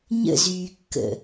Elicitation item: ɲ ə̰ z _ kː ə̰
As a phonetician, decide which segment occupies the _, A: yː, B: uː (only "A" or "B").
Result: A